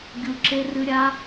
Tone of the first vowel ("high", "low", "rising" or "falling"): low